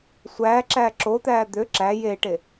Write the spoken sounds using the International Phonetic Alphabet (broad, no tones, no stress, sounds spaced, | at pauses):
sʷ æː ǁ æː ǁ o t̪ æː d̪ ø ǁ æ j e ʈ e